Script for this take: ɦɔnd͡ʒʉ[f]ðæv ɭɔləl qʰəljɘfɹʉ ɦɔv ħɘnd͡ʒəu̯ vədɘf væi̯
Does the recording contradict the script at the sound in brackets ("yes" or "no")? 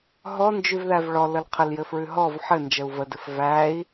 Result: yes